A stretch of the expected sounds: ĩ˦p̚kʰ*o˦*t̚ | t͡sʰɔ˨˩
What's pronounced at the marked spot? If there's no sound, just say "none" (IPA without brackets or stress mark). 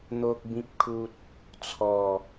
u˦